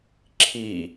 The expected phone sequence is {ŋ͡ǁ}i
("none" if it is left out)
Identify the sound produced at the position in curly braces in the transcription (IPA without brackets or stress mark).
ǁʰ